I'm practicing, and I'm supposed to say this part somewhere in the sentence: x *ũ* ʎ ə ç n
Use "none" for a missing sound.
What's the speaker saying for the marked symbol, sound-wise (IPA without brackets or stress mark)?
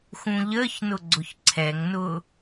ũ